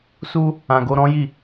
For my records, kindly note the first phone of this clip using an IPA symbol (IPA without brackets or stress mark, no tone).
s